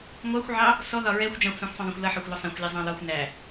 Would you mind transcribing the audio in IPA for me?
ŋʷɑxʷʕɑ | sɔðɒ ɹɛxʷ d͡ʒɑ̃xʷsɑ̃xʷsˤɑ̃ðˤɑ̃xʷ lʌħɒxʷlɔ sˤɛ̃xʷlʲɑzˤɑ̃ lɒxʷ næ

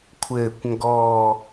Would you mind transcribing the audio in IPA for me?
kʷʰɘː˨˩kʷŋɡɔː˨˩

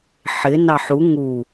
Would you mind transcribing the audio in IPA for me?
ħɪ nɑħu ŋu

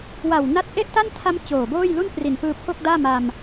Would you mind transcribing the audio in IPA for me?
wa˨˩w na˦˥t̚ ʔe˥˩ʔta˥˩ntʰa˦˥m t͡ɕoː˨˩boː˥˩jlu˥˩n pri˨˩n pɯː˧pʰo˥˩k̚daː˥˩ ma˧m

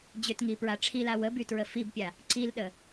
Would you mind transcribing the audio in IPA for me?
d͡ʑʏtŋipɹa ʈ͡ʂʰila wəbytɹə fibpʲa | ǀilɗə

